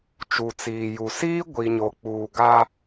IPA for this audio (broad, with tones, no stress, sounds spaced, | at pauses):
t͡ʃ u˨ t͡s iː˨ j u˨ s iː˦ ɡʷ i˨ ɲ o˨ k͡p uː˨ ɡ a˦